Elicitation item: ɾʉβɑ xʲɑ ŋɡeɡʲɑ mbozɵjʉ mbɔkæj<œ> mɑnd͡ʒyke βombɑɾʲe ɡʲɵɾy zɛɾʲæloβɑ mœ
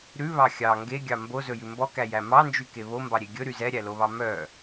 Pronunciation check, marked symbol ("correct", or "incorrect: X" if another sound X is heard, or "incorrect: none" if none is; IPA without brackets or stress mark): incorrect: æ